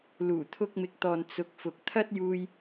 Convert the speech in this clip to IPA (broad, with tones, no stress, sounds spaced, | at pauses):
l uː˨˩ t̪ʰ ʊ˧ k̚ m ɪ˨˥ k̚ t̪ ɔː˨ n t͡s ʊ˨ k̚ f ʊ˨ k̚ t̪ʰ ɐ˥ t̚ j uː˧ j